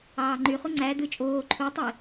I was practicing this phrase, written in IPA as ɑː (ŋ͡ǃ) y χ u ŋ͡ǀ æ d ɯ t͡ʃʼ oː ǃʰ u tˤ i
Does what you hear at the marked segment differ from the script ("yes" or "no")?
no